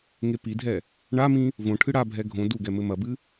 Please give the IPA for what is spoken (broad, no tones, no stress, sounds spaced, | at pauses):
ŋ e p i dʱ ɛ | ɳ a m ĩ | v õ ʈʰ ɨ ɽ a bʱ ɛ ɡʱ õ d u ɡ ɛ m ɘ m ɐ b ɨ